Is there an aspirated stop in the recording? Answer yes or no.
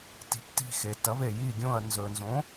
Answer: no